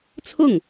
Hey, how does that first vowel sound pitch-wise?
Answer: falling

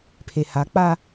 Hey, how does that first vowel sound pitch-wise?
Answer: low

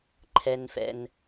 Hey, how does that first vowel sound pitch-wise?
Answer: low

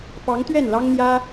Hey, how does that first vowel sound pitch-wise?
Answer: rising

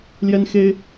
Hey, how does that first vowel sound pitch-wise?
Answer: high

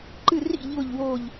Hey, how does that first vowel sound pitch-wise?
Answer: falling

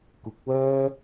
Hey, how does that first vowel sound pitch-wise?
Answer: rising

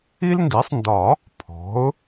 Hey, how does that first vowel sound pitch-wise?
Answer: high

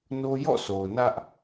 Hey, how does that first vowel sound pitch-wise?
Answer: high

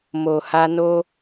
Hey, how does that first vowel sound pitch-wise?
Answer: low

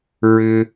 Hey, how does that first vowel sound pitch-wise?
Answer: low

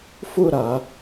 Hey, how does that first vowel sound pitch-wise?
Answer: falling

